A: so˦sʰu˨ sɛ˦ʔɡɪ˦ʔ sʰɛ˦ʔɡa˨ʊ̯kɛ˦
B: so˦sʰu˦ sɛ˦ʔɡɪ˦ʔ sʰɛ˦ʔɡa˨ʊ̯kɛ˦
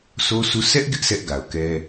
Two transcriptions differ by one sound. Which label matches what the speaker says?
B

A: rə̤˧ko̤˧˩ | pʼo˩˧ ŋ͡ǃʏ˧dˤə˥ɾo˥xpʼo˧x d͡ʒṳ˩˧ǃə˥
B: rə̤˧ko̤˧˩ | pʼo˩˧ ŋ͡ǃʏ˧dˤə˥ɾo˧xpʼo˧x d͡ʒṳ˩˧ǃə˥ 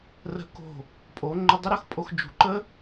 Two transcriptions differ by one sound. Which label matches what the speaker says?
A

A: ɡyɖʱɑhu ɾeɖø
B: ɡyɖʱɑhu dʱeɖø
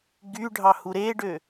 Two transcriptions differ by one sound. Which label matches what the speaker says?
A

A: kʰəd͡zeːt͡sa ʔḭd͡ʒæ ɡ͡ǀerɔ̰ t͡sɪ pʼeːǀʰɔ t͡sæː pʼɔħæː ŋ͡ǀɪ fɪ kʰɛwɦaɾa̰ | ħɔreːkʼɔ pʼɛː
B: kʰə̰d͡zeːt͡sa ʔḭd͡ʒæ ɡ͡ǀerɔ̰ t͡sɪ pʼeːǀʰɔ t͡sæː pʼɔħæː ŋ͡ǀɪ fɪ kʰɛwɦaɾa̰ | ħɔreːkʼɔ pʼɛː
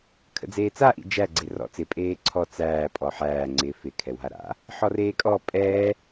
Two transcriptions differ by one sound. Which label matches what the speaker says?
B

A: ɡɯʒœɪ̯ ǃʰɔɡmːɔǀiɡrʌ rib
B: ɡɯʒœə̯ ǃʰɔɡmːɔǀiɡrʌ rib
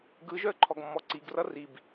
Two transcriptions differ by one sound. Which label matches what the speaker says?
B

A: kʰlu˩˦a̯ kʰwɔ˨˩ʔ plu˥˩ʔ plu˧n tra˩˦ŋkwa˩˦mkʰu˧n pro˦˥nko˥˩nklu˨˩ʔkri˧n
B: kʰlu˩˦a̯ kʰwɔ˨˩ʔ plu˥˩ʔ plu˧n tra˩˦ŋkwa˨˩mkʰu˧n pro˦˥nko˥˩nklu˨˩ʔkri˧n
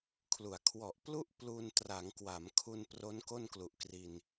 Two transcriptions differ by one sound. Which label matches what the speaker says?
A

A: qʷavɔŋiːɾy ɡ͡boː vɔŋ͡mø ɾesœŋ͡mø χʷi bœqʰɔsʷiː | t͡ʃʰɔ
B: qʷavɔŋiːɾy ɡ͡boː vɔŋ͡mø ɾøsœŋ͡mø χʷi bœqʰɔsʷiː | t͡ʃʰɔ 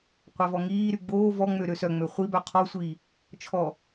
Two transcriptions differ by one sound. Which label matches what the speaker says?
B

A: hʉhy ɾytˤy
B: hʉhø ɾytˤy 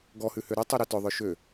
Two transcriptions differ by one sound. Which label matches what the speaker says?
B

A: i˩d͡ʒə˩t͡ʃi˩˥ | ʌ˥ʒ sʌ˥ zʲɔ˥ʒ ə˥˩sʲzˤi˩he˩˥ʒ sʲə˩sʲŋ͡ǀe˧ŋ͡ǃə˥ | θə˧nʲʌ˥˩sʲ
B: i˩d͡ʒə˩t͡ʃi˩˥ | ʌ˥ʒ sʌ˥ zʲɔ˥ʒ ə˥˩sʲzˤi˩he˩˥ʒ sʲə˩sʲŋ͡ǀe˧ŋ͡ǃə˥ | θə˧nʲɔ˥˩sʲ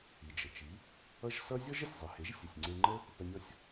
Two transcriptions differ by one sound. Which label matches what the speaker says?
B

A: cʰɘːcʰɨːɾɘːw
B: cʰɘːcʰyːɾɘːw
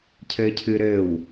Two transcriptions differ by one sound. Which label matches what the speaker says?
A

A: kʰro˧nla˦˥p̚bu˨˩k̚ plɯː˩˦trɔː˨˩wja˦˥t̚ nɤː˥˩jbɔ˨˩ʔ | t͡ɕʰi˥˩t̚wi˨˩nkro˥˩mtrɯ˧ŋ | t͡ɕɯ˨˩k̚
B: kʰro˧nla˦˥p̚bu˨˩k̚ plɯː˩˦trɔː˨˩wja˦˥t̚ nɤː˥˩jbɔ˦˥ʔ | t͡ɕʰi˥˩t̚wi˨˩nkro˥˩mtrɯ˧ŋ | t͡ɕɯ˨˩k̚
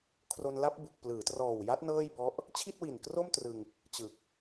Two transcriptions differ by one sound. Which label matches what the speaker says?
B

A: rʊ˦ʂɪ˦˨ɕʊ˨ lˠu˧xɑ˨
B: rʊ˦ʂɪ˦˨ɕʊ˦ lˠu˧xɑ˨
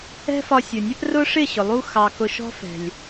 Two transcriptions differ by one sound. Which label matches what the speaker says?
A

